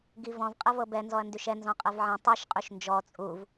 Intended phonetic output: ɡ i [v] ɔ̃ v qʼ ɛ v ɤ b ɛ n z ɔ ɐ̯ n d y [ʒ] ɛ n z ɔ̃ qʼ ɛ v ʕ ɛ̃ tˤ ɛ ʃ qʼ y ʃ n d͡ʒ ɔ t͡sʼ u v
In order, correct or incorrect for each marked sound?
correct, incorrect: ʃ

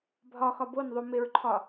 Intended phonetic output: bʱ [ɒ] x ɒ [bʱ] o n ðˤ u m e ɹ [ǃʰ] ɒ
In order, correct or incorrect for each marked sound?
correct, incorrect: b, correct

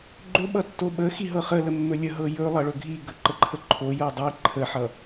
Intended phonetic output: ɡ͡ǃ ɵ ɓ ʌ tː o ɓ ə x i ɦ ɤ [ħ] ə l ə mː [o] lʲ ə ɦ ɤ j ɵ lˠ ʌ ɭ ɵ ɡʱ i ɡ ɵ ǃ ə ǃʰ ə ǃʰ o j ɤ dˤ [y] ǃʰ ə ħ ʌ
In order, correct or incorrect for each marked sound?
incorrect: χ, incorrect: ɵ, incorrect: i

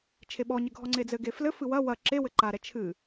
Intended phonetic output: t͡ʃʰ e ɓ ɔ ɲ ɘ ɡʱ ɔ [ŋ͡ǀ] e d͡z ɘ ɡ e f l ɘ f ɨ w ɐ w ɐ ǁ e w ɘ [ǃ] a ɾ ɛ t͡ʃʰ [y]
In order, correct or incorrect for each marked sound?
correct, correct, incorrect: ɨ

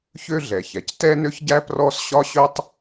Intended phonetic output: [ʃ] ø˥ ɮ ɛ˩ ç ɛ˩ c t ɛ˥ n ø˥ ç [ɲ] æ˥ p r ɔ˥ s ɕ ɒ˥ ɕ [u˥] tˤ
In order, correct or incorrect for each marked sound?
incorrect: ç, incorrect: ɟ, incorrect: ø˥

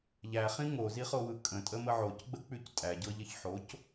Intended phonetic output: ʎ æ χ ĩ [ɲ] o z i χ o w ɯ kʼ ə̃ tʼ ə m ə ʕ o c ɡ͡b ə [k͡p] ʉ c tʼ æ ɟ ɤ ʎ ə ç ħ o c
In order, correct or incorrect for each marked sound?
incorrect: ŋ, correct

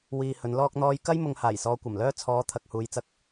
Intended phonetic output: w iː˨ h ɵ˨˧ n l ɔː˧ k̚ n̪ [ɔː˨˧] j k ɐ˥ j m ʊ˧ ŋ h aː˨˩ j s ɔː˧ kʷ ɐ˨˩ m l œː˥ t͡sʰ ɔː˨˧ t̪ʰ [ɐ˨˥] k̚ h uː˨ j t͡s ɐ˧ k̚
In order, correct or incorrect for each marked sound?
incorrect: ɔː˧, incorrect: ɐ˨

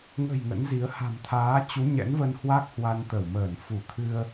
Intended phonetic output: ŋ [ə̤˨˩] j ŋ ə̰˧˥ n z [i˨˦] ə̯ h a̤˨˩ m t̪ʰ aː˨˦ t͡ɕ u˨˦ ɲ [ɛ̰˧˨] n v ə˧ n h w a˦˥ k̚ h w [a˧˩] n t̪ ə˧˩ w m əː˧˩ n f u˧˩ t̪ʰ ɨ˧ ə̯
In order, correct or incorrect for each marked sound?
correct, correct, incorrect: ɛ̰˧˥, incorrect: a˧

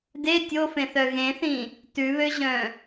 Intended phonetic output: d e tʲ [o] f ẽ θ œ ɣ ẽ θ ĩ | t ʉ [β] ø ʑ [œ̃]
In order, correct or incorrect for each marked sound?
correct, correct, correct

